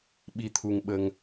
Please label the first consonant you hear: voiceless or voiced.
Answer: voiced